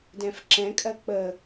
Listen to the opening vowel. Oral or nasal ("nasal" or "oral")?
nasal